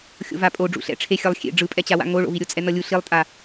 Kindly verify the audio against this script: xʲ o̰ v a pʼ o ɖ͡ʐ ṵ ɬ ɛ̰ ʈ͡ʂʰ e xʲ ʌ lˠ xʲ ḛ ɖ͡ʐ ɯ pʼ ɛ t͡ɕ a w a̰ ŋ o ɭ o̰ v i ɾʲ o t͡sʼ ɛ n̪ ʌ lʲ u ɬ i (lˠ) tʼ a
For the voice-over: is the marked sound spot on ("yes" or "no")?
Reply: yes